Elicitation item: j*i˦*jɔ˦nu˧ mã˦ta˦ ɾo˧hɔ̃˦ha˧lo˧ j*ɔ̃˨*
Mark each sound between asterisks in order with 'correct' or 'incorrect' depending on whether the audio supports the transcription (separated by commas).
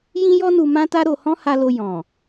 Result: incorrect, correct